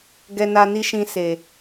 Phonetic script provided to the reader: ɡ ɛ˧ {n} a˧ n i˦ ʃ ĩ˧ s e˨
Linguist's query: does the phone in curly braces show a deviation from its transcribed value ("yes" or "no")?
no